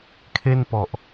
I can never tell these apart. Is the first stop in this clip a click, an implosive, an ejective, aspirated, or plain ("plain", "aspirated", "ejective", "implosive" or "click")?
aspirated